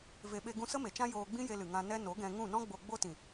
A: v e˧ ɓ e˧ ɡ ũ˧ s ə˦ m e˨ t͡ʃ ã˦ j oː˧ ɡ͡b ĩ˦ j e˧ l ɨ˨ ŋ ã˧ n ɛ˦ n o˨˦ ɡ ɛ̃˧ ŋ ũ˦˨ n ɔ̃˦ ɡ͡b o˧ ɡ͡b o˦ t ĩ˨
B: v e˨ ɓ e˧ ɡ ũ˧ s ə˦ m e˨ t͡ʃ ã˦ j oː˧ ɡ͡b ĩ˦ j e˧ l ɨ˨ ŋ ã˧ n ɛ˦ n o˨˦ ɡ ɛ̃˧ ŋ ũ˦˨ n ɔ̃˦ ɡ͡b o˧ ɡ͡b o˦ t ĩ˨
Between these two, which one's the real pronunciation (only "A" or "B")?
B